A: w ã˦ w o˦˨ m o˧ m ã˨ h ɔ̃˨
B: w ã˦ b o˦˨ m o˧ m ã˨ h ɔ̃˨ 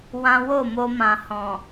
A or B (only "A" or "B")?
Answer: A